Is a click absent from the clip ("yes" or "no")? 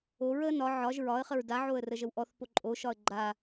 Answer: no